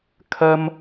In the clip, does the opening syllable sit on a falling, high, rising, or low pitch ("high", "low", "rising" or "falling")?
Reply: high